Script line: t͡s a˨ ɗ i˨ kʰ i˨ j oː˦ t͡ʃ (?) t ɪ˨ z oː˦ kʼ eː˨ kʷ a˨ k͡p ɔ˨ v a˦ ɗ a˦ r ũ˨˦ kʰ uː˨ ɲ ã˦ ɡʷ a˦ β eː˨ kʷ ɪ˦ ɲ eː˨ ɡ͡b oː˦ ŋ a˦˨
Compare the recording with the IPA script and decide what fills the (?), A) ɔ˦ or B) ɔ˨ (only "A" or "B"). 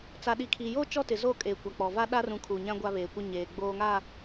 A